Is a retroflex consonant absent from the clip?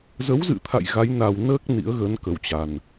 yes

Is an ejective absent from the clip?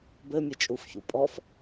no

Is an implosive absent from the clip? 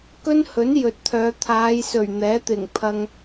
yes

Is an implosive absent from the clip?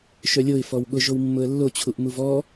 no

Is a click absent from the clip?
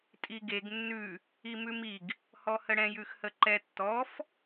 no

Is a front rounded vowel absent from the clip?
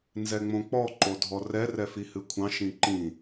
yes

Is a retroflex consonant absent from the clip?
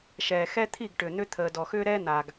no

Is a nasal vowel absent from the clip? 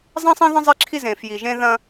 no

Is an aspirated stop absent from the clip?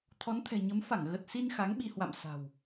no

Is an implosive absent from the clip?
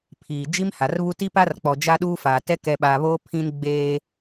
no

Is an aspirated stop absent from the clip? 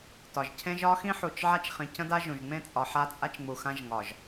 no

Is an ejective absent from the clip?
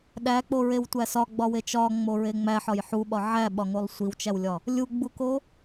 yes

